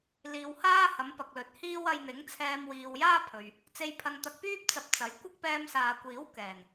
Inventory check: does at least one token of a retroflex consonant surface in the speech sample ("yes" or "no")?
no